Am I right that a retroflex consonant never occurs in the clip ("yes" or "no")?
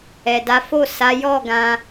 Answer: yes